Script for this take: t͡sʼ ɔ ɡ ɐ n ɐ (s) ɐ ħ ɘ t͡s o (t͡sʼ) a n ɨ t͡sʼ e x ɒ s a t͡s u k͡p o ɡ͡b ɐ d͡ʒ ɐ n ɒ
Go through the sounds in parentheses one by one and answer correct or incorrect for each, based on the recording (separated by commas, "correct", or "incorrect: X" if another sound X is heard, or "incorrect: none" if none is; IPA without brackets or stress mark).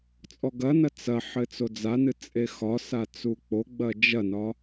incorrect: t͡s, incorrect: d͡z